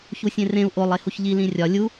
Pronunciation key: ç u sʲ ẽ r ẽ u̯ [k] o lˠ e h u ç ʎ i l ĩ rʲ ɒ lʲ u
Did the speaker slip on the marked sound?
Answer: yes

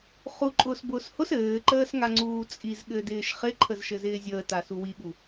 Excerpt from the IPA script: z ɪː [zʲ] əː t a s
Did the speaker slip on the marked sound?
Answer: no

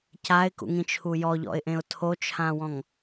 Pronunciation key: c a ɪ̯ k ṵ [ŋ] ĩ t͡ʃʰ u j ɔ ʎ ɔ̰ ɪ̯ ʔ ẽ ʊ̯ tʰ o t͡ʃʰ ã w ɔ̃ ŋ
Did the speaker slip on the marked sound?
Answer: no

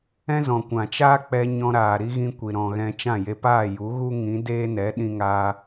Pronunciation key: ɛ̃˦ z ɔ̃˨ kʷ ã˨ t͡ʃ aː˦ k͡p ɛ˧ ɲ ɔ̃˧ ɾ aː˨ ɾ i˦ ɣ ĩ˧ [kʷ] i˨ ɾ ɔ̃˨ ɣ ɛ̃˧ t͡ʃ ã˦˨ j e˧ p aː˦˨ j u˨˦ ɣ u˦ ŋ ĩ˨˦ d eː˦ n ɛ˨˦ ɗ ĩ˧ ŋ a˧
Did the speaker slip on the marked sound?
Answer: no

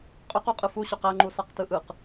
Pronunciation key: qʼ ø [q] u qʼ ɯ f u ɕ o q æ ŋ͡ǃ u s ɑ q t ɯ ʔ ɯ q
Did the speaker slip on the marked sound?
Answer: no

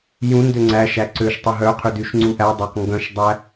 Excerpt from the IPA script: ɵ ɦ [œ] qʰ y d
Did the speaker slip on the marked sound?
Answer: no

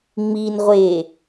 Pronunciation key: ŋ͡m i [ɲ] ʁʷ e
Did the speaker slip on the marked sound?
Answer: yes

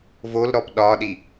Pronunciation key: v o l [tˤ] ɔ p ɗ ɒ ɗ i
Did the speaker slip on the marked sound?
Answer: yes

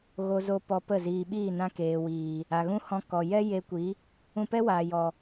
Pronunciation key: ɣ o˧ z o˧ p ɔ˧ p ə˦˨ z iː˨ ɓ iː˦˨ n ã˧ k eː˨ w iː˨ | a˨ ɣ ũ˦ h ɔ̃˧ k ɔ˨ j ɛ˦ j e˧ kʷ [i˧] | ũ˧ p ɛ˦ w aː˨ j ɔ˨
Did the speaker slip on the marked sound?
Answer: yes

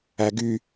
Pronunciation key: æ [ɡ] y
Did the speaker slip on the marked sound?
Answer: no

